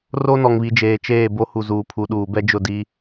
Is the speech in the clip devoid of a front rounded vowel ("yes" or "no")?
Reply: yes